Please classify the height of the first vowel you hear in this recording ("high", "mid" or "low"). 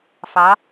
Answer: low